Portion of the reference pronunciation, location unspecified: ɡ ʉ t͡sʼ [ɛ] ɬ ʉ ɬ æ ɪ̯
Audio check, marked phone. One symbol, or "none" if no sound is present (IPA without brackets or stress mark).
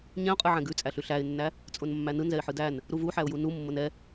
æ